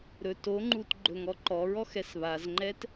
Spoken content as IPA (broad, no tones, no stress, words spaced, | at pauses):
ɾɵt oŋ͡ǃut ɡ͡ǃɵŋɔǃɔɹɔx ɛsβazŋ͡ǃɛt